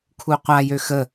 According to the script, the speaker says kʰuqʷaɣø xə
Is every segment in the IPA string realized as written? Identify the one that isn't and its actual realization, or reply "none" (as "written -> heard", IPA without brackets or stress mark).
ɣ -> j